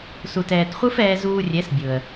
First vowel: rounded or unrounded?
rounded